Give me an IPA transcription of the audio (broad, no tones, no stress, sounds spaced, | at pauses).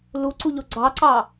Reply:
l u ǀ u ʎ o ɡ͡ǀ ɑ ǀ ɑ